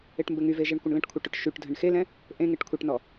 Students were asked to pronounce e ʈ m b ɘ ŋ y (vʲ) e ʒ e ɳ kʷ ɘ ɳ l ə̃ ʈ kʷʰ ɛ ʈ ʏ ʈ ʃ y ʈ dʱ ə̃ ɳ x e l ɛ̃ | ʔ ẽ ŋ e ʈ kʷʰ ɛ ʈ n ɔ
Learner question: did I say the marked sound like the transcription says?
no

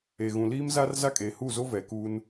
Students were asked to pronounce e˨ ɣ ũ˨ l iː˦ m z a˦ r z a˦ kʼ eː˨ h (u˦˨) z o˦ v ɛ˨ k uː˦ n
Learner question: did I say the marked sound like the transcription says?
yes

